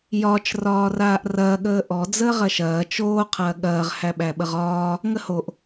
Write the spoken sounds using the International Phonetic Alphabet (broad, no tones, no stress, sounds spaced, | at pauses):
j ɒ t͡ʃ r ɒː r aː ʔ r ɐː ɠ əː ʔ ɔ d͡z əː ʁ ɐ ʃ ɐː t͡ʃ oː qʰ ɐː ɠ ɐː ʁ h æ ɓ æ ɓ ə ʁ ɒː | ŋ ə h o ʔ